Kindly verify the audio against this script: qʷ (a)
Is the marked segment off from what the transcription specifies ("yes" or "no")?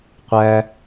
yes